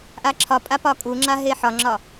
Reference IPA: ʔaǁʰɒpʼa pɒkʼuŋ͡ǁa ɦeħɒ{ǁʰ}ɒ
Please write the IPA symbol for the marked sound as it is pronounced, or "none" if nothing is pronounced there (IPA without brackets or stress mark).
ŋ͡ǁ